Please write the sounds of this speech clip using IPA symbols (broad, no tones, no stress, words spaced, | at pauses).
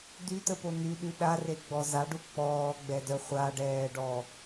dytəpo nyɗy ɗareɡ͡bɔ zaɖu k͡pɔːɡ͡bɛdœ χʷaɖɛːɖɔ